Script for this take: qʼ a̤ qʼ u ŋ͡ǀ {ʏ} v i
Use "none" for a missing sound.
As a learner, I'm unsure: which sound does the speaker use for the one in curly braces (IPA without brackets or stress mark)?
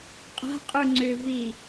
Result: ʏ